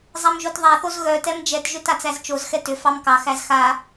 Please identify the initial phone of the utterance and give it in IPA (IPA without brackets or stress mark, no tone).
zˤ